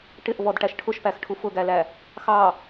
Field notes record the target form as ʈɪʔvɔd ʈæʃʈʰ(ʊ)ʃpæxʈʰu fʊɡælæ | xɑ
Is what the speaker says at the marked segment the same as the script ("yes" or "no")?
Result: yes